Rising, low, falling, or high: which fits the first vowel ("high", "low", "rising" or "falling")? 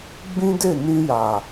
high